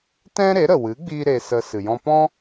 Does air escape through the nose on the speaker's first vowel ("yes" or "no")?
yes